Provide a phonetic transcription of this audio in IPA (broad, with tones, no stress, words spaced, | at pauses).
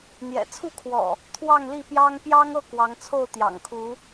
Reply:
n̪jɛ̰˨˩t͡sʰu˥˨kʰwɔ̰˨˩ | t̪ʰwɑ˥˨ŋli˥˨pjɑ˦ŋ pjɑ˦ŋɤ˥˨ kwɑ˨˦ŋt͡sʰo˥˨ʊ̯t̪jɑ̰˨˩ŋkʰu˨˦